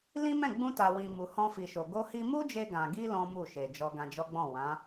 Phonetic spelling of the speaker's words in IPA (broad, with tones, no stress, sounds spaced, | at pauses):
l ĩ˦ m ɛ̃˦˨ ɡ͡b ũ˧ t a˨ w ĩ˨ m u˨ h ɔ̃˧ f i˨ ʃ o˨ ɡ o˧ h i˧ m u˦ d͡ʒ e˧ ɡ ã˨ ɡ i˧ l ɔ̃˦ m u˦˨ ʃ e˨ d͡ʒ ɔ˧ ɡ ã˧ d͡ʒ ɔ˦ ɡ͡b ɔ̃˦˨ w ã˨˦